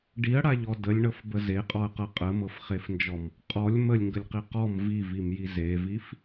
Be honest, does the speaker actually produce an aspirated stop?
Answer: no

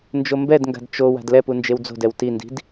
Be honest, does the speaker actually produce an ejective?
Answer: no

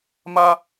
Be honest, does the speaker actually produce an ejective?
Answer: no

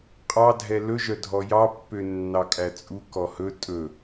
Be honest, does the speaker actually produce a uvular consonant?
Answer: yes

